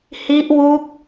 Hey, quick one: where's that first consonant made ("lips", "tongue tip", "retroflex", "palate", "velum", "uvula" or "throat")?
throat